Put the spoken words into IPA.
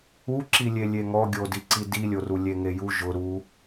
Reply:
u ǁ i lʲ e lʲ e ŋ ɔ ɡʲ o d i ǀ i d i lʲ o r u lʲ e ŋ e j u ʒ ʊ ɾ u

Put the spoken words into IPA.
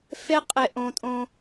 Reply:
f e˦ qʼ e˧ ʔ õ˧ tʼ õ˧

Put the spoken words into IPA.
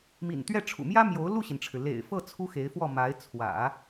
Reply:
m ḭ˨˩ n t̪ ɥ ɛ˥˩ ʈ͡ʂʰ ṵ˨˩ m j ä˥ m j o˧˥ ʊ̯ l u˥˩ ɕ i˩ n ʈ͡ʂʰ ɻ̩˩ l ḛ˨˩ ɪ̯ f ɤ˥˩ t͡sʰ u˥ x e˧˥ ɪ̯ f w ɔ˥˩ m a˧˥ ɪ̯ t͡sʰ w ä̰˨˩˦

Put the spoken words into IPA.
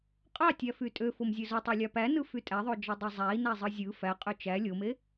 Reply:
qʼ ɑ tʲ æ f y tʼ ø f o m zʲ ø z o tˤ e lʲ ɑ p æ n ɯ f y tʼ æ ðˤ o d͡ʒ ɑ dˤ ɑ zˤ æ i̯ n æ zˤ ɯ zʲ ɯ f æ qʼ ø t͡ʃ æ lʲ o m e

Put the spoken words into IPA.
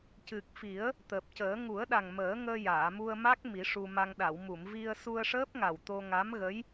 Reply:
c ɨ˨˩ k̚ f i˨˩˦ ə̯ | t̪ əː˨˩ p̚ c əː˨˩˦ ŋ u˨˩˦ ə̯ ɗ a˨˩ ŋ m əː˨˩˦ ŋ əː˧ j aː˨˩˨ m u˧ ə̯ m a˦˥ k̚ m i˨˩˦ ʂ u˧ m a˧ ŋ ɗ a˨˩˨ w m u˨˩˨ m v i˧ ə̯ s u˧ ə̯ ʂ əː˦˥ p̚ ŋ a˨˩ w t̪ o˧ ŋ a˧˥ m ɣ ə˧˥ j

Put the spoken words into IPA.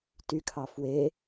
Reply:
t y kʰ ɑ f w e

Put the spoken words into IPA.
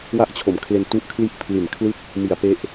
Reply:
w a˥˩ ʔ t͡ɕʰ o˩˦ m kʰ l e˧ n t u˦˥ ʔ kʰ l i˥˩ ʔ pʰ l i˨˩ n kʰ l ɯ˥˩ k̚ | m i˩˦ a̯ p e˦˥ ʔ

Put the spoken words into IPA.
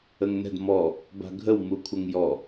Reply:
ə ŋ n ɛ̤ d m ɔ | b a̤ ɡʱ ə w m u kʷʰ ə ŋ j ɔ

